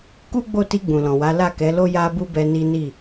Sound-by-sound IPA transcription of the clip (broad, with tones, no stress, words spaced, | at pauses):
ku˦ɡ͡bo˦˨ti˧ ɡ͡bũ˨lɔ̃˨wa˨˦la˦˨ kɛ˨˦lo˦ ja˦ bu˦bɛ˧ ni˦ ni˦˨